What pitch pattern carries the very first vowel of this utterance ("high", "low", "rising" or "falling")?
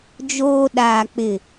high